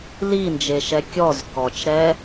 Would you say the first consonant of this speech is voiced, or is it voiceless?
voiced